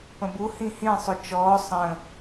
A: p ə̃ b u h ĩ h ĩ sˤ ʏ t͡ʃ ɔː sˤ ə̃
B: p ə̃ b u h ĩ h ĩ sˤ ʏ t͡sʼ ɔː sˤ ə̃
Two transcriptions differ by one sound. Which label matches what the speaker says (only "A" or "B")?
A